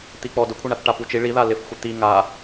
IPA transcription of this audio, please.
t̪ i k͡p ɔ d ʊ kʷʰ e ɳ a θ ʈ a p u t͡ʃ i ɭ i ð a l ɪ f xʷ ɪ t̪ i ŋ a

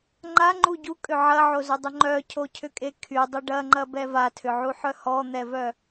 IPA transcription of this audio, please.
ŋ͡ǃ a ŋ͡ǃ u ɟ u kʼ ʏ ʕ ɐ ʕ o z ʏ dˤ ʏ ŋ͡ǃ œ cʰ o cʰ ʏ kʼ e kʰ y dˤ ʏ ɖ ɐ ŋ͡ǃ ɐ b ɛ v a tʰ ʏ ʕ u ħ œ h ɔ n̪ ɛ v œ

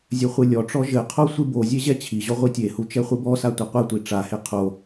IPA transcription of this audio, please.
zʲ ɘ χʷ ɨ lʲ ɔ ʈ͡ʂ ɔ ʒ ɘ qʰ o sʷ ɨ b o zʲ e ʑ ɛ t͡ɕʰ i ʑ ɔ ʁʷ i tʲ e h u t͡ʃ ɛ χʷ ɨ b ɔ s a tʷ ɐ qʷ ɘ tʷ i ʈ͡ʂ a h e qʰ o

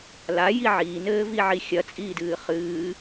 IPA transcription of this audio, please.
l a j i ʕ iː n ɘː v i ʕ i xʲ ɐ t͡sʼ iː d ɨː χ ɨː

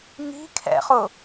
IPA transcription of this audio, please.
ŋ i̤ kʰ ɛ̰ χ ʊ

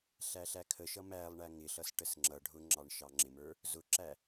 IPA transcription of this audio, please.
ɬ æ ɬ æ kʰ ə ʃ ʌ m æ lˠ ɳ æ ŋ ɪ ɬ ʌ s ʈ ə s ŋ͡ǁ ʌ ɖʱ ʊ ŋ͡ǁ ɑ ɳ ʃ ɑ ŋ͡ǁ ɪ m ə˞ | z ʊ ǁ æ

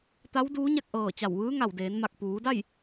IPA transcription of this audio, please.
t̪ a˧˥ w d uː˧˥ ɲ a˥˨ k̚ ʔ ɤː˧˩ t͡ɕ a˧˩ w ʋ ɯː˧˥ ŋ a˧˩ w d eː˩˧ n m a˧˩ k̚ p uː˩˧ d a˥˨ j

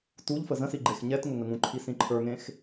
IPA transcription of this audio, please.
t u ʎ f ə z ə̃ s i ɡ͡ǃ e x ɲ ɛ t ŋ ʊ ŋ ə ŋ ũ ǃʰ i s ĩ ǃʰ ə˞ ŋ ẽ x

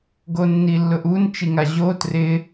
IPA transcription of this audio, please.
ɡ o nː i lː ʊ ʔ u n t͡ʃ i ŋ a ʑ o t r ɪ

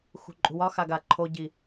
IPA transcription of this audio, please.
x ṳ ǃʼ ṳ w ɒ x a ɡ a ǃʰ o ɟ i

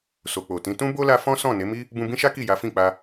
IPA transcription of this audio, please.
s o˨ k͡p o˨ t ĩ˨˦ t ũ˦ b o˦ l a˧ f ɔ̃˦ s ɔ̃˦˨ n e˨˦ m i˦ | b ũ˧ b ĩ˦ ʃ a˦ k i˦˨ j a˨˦ f ĩ˦˨ k͡p a˧

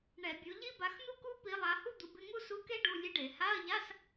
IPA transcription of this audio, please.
ɳ ɛ˧˩˧ bʲ u˨˦ ʎ i˥ b a˨˦ x n̪ u˥ k u˥ p i˨˦ lˠ a˨˦ h u˥ d̪ u˨˦ b ɪ˧˥˧ ŋ u˥ s u˧˥˧ k e˥ ɖ u˧˥˧ lʲ e˥ ɖ e˧˩˧ h a˧˥˧ ɐ̯ ʎ a˧˥˧ s

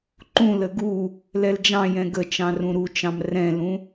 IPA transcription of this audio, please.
ǃ ũ l ə ɡ u | l ɛ l d͡ʒ ɑ̃ j ɛ̃ ɡ ə t͡ʃ ɑ̃ r ũ ɾ u t͡ʃ ɑ̃ m r ɛ̃ l ũ

